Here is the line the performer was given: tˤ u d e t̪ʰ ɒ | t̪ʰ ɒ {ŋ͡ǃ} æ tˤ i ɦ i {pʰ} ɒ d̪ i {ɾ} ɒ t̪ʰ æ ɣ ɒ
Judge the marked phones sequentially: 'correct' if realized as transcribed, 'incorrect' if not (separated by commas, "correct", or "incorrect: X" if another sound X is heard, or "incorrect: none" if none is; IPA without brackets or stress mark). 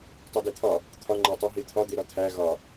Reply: correct, incorrect: t̪ʰ, correct